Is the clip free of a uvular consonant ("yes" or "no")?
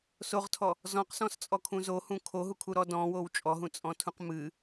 no